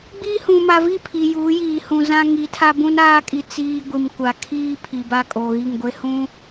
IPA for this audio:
ɡ͡b i˦ h ũ˨ m a˨ v i˦˨ pʰ i˨ j uː˨˦ j iː˨ h ũ˨ z ã˦ ŋ i˨˦ tʰ a˦ b ũ˦ n aː˦ kʼ i˨ t͡s iː˦ ɡʷ i˨ m kʷ a˨ kʰ iː˦ pʰ i˨ b a˦ kʼ o˨ ɣ i˦˨ ŋ ɡʷ e˦ h ũ˦

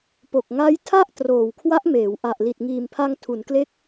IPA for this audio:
p o˨˩ k̚ ŋ a˦˥ j tʰ a˥˩ ʔ t r oː˨˩ w kʰ w a˦˥ ʔ m eː˩˦ w ʔ a˨˩ ʔ l i˨˩ t̚ ŋ iː˨˩ m pʰ a˧ ŋ tʰ u˩˦ n k l e˦˥ k̚

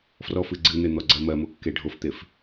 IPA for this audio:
f r ɔ f ɨ ɡ͡ǀ ɨ n̪ e n̪ ɔ ɡ͡ǀ ɜ m ɜ m o kː e ɖʱ o f t̪ e f

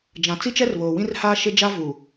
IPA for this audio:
d͡ʒ ã˨ t͡s i˦ t͡ʃ ɛ˦ r β oː˨ w ĩ˦ r h aː˦ ʃ ɪ˦ d͡ʒ a˦ v u˨

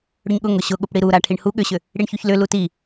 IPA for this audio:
ɽ ʏ ɲ ɠ ʊ ŋ ʊ ɕ ʊ ɠ ʊ p ɽ i ɾ u ɾ a ʈʰ i ɳ h u ɠ ʏ ɕ ʏ | ɽ i ɳ ç u ç l ʏ l u t i

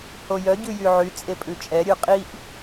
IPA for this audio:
h o j œ ɟ ʉ j y ʕ y t͡sʼ e pʼ ʉ t͡ʃʼ ɛ ɾʲ ʉ qʼ i ʔ

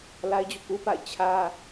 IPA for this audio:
l a˦ ɪ̯ d͡ʑ ṵ˦˨ k u˦ p a̰˦˨ ɪ̯ t͡ɕʰ ä˦

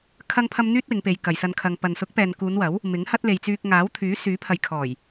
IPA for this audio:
kʰ ɐ˥ ŋ pʰ ɐ˥ m n̪ yː˥ t̚ w ɪ˨˧ ŋ p e˨˧ j k ɐ˨ j s ɐ˧ n kʰ ɐ˨ ŋ p ɐ˨ n s ʊ˨˥ k̚ p ɛː˨ n k uː˨˧ n w ɐ˨˥ w | m ɪ˨˥ ŋ h ɐ˥ t̚ l e˨ j t͡s yː˧ k̚ ŋ aː˨˥ w t̪ʰ yː˨˥ s yː˨˥ pʰ ɐ˨ j kʰ ɔː˨˩ j

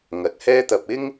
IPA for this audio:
ŋ ɐ˨˥ t̚ h ɛː˥ t̪ ɐ˧ p̚ ɪ˥ ŋ

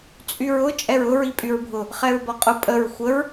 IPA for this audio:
t͡sʼ y ɹ ʊ t͡ʃʼ ɛ ɹ ʊ ɹ i pʼ y ɹ bʱ ʊ | χ ɛ ɹ b ɒ qʼ ʊ pʼ ə ɹ xʷ ə ɹ

